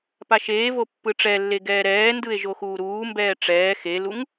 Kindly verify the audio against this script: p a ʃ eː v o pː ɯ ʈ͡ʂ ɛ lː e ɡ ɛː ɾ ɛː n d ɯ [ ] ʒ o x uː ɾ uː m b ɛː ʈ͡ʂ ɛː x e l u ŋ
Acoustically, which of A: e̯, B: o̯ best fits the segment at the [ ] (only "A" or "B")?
A